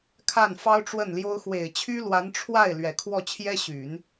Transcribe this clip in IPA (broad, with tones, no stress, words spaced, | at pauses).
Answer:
kʰa˥˩nfɑ˥ʊ̯ʈ͡ʂwə˥˩nljo˥ʊ̯ xwe˨˩ɪ̯t͡ɕʰy˥lwa˧˥n ʈ͡ʂʰwa˥˩ɪ̯ lɥɛ˨˩kʰwɔ˥˩ t͡ɕʰjɛ˥ɕy˨˩˦n